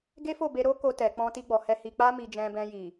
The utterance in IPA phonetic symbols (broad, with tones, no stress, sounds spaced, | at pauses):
ɡ e˦ f o˦˨ b e˧ ɾ o˦ k o˧ t ɛ˨ k͡p ɔ̃˧ t i˧ ɡ͡b ɔ˨ h ɛ˧ h i˧ k͡p a˦ m i˧ d͡ʒ ɛ̃˧ b ɛ̃˧ j i˨